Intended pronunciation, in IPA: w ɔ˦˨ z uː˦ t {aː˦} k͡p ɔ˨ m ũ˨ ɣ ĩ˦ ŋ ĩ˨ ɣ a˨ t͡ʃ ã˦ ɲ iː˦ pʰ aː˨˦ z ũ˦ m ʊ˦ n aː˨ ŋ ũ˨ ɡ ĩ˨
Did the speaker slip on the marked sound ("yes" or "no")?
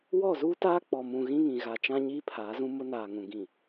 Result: no